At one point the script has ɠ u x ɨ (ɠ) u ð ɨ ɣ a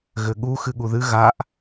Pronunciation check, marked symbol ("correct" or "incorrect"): correct